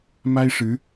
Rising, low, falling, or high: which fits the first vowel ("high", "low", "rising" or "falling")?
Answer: high